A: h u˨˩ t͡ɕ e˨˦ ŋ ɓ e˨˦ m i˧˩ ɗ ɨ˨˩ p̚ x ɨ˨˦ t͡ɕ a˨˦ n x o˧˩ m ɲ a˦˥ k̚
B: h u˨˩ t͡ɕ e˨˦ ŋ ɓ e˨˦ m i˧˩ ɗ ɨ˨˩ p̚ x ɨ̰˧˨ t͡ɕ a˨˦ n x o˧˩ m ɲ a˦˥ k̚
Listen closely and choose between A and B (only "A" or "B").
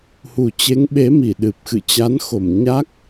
B